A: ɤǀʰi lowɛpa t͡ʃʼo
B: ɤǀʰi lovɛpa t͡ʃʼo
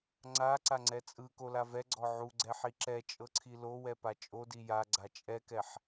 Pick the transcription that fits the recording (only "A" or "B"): A